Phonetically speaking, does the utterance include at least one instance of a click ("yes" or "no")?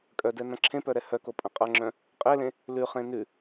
yes